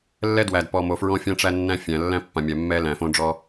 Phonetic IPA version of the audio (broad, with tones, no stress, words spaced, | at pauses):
lːɛ˦dwæ˨dpɔ˨mo˨ fɹɔ̃˦fʲã˦ʈ͡ʂæ˦ nːæ̃˦fʲæ̃˨ lːæ̃˦pːã˨mʲæ˨ mːɛ˦læ̃˨ fõ˦ɖ͡ʐɔ˦